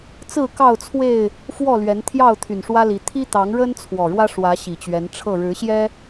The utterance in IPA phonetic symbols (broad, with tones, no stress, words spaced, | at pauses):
t͡sɹ̩˥˨kɑ˥˨ʊ̯t͡sʰwe˥˨ɪ̯ | fwɔ˥˨lɥɛ˨˦nt̪ʰjɑ˥˨ʊ̯ t̪ʰy˨˩nʂwä˦li˨˦ t̪ʰi˦t̪ɑ˨˦ŋɻə˦n t͡sʰwɔ˨˩ɻwä˦ ʂwä˨˦ ɕi˨˩t͡ɕɥɛ˨˦nʈ͡ʂʰɤ˥˨ ɻɻ̩˨˦ɕjɛ˦